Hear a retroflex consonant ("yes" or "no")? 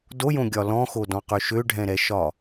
yes